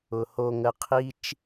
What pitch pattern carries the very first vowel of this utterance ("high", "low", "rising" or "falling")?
low